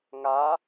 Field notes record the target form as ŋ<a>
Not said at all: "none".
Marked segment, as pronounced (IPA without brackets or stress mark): a